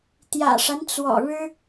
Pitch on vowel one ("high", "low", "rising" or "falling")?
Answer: low